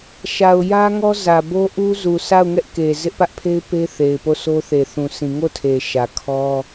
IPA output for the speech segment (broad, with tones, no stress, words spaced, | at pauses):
ʃa˨ʊ̯ jä˦ŋɔ˦zä˨bo˦ ʔu˦ zu˨sa˦˨ʊ̯ŋɛ˦ʔ ke˨ zɪ˦ʔpä˦ʔpʰe˦ɪ̯pe˦ θe˨ɪ̯po˦˨sʰo˦θe˨ θũ˨sĩ˨ŋo˦˨tʰe˨ ʃä˨kʰɔ˦